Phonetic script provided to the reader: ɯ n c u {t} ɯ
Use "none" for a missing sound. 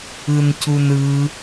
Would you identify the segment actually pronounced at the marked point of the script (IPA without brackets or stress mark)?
n